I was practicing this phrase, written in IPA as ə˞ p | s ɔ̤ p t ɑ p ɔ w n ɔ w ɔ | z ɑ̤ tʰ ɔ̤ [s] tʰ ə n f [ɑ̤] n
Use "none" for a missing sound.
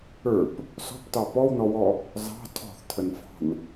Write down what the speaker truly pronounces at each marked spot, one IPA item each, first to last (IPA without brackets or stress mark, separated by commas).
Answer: θ, ɑ̤